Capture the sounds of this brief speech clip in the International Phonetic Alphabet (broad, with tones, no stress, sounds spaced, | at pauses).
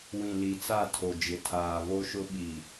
w ĩ˨ l i˨ t͡s a˦˨ tʰ o˨ d͡ʒ ɪ˨ tʰ aː˨ v o˦ ʃ ʊ˦ ɓ i˨